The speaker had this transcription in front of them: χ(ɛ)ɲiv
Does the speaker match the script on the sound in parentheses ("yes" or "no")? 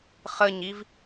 no